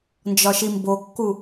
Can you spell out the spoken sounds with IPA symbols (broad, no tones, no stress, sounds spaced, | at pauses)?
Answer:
n d͡ʒ ɒ ʃ i m b o kː u